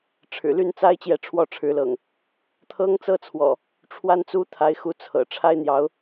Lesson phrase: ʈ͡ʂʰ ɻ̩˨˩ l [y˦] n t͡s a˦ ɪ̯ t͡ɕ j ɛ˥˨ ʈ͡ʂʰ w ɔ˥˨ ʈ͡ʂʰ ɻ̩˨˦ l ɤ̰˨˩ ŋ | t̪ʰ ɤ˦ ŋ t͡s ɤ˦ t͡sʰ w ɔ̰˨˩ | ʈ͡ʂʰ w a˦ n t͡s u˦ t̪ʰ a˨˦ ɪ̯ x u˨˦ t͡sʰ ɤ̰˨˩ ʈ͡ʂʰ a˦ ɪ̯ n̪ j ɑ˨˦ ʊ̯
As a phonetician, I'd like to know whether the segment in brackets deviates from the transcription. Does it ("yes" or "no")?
yes